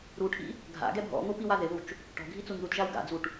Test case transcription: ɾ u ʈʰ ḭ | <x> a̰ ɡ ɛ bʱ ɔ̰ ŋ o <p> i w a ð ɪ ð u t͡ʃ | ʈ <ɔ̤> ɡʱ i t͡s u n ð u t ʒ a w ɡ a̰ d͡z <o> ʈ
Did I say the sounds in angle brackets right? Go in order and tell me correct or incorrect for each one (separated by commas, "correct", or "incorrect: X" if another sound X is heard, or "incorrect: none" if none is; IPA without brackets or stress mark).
incorrect: ɡʱ, correct, correct, incorrect: u